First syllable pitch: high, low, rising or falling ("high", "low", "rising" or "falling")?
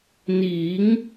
rising